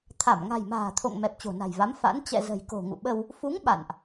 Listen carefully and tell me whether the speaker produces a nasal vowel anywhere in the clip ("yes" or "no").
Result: no